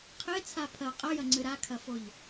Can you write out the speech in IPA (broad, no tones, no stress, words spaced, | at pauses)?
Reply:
qʰet͡sʰa pʰɐ qʼɐjɐŋ͡ǀɨ ɾakʰɐfoʎ